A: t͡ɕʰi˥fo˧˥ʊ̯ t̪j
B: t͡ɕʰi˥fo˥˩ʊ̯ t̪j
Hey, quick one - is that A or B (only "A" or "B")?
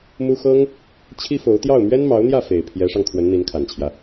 A